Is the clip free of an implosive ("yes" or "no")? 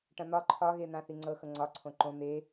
yes